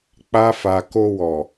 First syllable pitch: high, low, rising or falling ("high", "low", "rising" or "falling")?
high